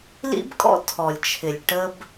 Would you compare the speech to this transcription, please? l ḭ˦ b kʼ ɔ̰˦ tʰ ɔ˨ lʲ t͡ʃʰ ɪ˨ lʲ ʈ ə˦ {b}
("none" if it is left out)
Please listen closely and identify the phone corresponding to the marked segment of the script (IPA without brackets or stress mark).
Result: b